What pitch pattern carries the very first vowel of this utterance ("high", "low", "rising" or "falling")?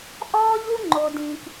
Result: high